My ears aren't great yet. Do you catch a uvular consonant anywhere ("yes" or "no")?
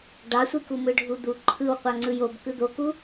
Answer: yes